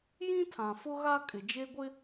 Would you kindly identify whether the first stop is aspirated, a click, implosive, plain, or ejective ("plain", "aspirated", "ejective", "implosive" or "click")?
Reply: aspirated